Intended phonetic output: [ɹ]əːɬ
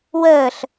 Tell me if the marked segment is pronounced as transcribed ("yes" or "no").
no